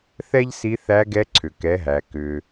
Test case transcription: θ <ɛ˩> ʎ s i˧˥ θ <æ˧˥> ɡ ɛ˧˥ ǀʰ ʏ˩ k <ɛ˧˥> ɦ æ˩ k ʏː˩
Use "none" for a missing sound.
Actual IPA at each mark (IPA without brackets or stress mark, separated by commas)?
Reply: ɛ˥, æ˧˥, ɛ˩˧